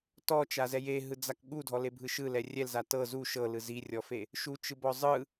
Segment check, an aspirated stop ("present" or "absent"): absent